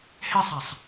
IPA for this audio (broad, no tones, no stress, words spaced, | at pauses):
hesˤasˤ